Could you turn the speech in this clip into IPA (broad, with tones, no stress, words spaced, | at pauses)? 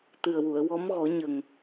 t̪ɨ˨˩ə̯wu˨˩˨ə̯ wɔ˧˥mɣɔ˨˩˦ ɲə˨˩ŋ